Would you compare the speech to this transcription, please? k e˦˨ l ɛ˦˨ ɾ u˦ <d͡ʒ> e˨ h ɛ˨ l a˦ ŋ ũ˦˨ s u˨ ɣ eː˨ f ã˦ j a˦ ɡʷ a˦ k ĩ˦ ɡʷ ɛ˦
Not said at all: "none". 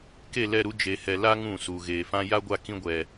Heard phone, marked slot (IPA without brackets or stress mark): d͡ʒ